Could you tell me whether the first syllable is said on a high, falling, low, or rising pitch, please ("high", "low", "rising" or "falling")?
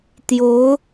rising